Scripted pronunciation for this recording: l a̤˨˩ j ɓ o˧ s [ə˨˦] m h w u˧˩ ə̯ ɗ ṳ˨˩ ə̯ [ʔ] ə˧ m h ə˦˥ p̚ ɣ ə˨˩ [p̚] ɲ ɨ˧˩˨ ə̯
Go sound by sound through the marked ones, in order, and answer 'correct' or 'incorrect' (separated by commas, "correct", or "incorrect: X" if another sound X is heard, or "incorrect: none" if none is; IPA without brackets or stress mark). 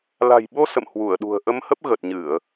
incorrect: ə̰˧˨, correct, incorrect: t̚